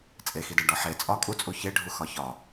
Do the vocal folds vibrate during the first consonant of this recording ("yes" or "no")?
no